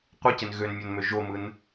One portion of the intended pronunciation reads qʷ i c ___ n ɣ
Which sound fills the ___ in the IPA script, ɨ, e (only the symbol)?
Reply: e